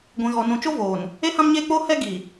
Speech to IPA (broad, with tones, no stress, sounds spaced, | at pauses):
ɡʷ ĩ˨ ɣ ɔ˨ n ũ˨ t͡ʃ o˦ v oː˨ n | e˦ h ã˦ m ɲ eː˦ k͡p oː˦ h ɛ˦ ɡ i˨